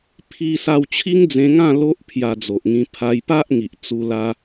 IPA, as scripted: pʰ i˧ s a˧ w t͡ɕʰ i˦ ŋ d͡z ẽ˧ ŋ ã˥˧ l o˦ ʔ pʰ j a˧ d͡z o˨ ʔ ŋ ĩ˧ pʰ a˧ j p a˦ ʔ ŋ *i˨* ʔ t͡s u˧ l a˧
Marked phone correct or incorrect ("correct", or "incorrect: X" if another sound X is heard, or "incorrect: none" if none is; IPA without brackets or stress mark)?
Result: correct